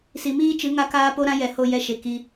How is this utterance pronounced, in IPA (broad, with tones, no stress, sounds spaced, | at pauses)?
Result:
s i˨ m iː˦ t͡ʃ ɨ˨˦ ŋ a˦ k aː˦ p o˦ ɾ ã˦ j ɛ˨ h o˧ j ɛ˧ ʃ e˨ k i˧